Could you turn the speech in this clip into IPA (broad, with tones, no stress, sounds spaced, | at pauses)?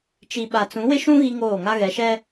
t͡ʃ i˨ ɓ a˨ t͡s ũ˨˦ w ɪ˦ ʃ ũ˦ ɣ i˦ ŋ oː˦˨ ŋ a˦ ɣ ɛ˨ ʃ ɛ˦